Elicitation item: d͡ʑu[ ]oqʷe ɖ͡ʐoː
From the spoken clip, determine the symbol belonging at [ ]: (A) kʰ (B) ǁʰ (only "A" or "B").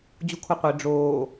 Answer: A